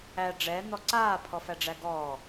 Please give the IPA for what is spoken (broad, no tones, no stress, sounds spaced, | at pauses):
æ ɖ͡ʐ ɛ n̪ ɔ ǀ aː pʰ ɔ f æ ɖ͡ʐ æ ɡ ɔː